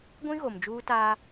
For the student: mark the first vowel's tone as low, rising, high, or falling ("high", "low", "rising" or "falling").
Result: high